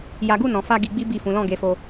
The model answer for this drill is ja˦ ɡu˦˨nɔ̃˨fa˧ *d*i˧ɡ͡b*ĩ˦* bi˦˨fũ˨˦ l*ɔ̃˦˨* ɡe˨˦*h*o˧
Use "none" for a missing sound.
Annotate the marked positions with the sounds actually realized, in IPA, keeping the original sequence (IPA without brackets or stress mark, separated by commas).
ɡ, i˦, ɔ̃˦˨, f